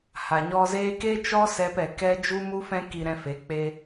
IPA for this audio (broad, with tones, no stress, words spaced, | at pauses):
ha˨ɲɔ˧zeː˦ ke˦t͡ʃɔ˦sɛ˧pɛ˨ kɛ˦ d͡ʒu˦mu˦fɛ̃˦ ki˧ɾɛ̃˧ fe˨˦ k͡pe˧